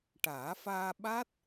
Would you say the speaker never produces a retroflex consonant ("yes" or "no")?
no